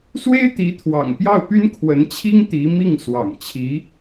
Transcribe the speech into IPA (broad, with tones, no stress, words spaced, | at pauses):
swe˥ɪ̯t̪i˧˥t̪ʰwɑ̰˨˩ŋ pjɑ˥˩ʊ̯py˥nkʰwə˧˥nt͡ɕʰi˥ŋ t̪i˧˥mi˥˩ŋ swɑ̰˨˩ŋt͡ɕʰi˧˥